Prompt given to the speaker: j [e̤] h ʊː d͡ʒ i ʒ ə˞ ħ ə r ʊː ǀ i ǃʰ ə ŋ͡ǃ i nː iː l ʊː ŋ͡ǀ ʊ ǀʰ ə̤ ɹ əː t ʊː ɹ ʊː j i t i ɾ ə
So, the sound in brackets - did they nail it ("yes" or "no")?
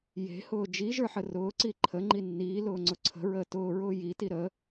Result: yes